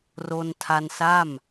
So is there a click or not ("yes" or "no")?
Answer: no